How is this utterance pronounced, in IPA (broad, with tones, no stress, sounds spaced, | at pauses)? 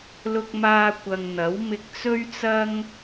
l ʊ˧ k̚ m aː˧ kʷ ɐ˨ ŋ n̪ ɐ˨˥ w m ɪ˧ k̚ t͡s ɵ˥ ɥ t͡s ɐ˥ ŋ